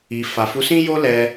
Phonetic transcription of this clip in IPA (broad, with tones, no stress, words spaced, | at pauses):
i˨ fa˨fu˨˦sĩ˦jo˦ lɛ˧